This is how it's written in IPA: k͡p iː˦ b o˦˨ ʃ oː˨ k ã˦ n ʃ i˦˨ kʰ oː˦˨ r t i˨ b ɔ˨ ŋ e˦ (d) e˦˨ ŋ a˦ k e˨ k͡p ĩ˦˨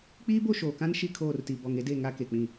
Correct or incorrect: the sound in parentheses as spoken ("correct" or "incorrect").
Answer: correct